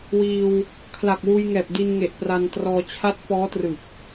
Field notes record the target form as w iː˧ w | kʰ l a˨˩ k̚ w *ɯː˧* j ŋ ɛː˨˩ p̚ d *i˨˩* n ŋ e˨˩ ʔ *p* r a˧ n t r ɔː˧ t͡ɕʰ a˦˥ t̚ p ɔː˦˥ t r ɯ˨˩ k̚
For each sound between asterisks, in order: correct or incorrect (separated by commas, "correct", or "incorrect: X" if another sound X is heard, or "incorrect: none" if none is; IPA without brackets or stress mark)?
incorrect: uː˧, incorrect: i˧, correct